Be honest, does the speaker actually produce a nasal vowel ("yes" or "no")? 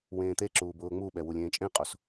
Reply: yes